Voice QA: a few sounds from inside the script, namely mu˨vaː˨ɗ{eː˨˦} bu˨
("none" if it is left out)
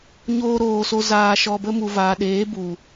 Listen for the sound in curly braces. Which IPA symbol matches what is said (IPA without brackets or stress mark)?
eː˨˦